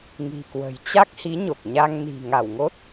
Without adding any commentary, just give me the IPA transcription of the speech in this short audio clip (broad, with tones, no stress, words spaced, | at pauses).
ŋi̤˨˩kwə̤˨˩jt͡ɕa˦˥k̚hi˨˦ ɲo˨˩k̚ɲa˧ŋ ni̤˨˩ ŋa˧˩wŋo˦˥t̚